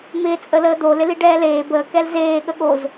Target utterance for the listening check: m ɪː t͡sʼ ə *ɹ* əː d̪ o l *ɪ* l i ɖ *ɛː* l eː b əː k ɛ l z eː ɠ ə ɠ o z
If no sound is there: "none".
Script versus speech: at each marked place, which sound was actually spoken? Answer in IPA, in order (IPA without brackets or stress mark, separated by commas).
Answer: l, ɪ, ɛː